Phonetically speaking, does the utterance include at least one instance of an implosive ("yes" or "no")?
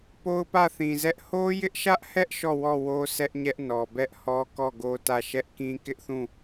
no